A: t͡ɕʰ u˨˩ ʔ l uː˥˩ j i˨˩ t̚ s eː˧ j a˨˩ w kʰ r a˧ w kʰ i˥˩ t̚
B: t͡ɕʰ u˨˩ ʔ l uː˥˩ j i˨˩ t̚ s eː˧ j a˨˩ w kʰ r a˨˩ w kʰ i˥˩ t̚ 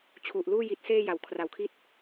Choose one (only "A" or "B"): B